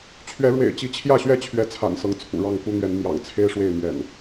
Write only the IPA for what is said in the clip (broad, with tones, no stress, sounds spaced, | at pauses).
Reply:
t͡ɕʰ ɥ ɛ˨˦ ɻ w ḛ˨˩ ɪ̯ t͡ɕ i˨˦ t͡ɕʰ j ä˥˨ ɕ ɥ ɛ˥˨ t͡ɕʰ ɥ ɛ˨˦ t͡sʰ a̰˨˩ n s ɤ˨˦ ŋ t͡sʰ ṵ˨˩ ɻ ɑ˥˨ ŋ k u˦ n̪ ɥ ɛ˨˦ n m j ɑ̰˨˩ ŋ t͡sʰ e˦ ɪ̯ ʂ w e˥˨ ɪ̯ m ɥ ɛ̰˨˩ n